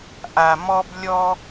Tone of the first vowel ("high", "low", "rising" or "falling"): low